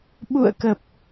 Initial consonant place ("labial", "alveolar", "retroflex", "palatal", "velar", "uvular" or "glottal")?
labial